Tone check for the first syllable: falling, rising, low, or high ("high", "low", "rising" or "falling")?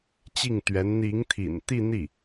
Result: falling